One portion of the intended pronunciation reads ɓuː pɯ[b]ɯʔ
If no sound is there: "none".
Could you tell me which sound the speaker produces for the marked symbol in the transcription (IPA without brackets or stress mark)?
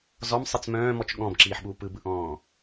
b